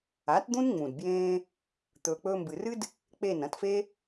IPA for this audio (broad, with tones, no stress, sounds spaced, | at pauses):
a˨˦ t d̪ ũ˦ n ŋ͡m ũ˨ d b j ẽː˧ | t̪ ɵː˨ k͡p ɵː˧ m b ɨ˨ r ɨ˦ d | k͡p e˦˨ n ɐ̃˧ t f e˦